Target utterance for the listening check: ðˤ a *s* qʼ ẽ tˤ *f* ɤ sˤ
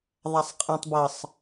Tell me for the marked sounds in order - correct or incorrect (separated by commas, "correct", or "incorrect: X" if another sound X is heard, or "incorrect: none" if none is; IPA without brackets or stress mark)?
incorrect: sˤ, incorrect: b